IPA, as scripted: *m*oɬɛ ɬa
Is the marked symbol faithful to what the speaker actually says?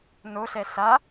no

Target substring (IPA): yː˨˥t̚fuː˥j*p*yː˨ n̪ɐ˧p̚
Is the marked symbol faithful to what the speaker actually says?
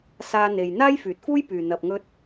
yes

